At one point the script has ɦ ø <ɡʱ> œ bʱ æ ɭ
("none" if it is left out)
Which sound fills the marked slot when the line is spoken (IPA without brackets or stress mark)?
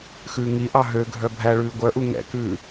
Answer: ɡʱ